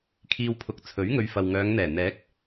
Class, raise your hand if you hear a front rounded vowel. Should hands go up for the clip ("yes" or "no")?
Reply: yes